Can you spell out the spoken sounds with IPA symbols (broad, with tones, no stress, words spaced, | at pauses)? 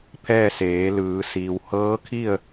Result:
pʰɛː˥˨seː˩˧lɯː˩˧ siː˩whɤː˧˥kʰi˥˨ə̯